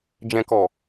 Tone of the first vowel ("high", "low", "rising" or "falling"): low